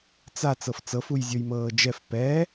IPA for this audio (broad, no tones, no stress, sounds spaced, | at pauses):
t͡s a t͡s ɤ f t͡s ɤ f u j zʲ o j m ɤː d͡ʒ ɛ f p ɛ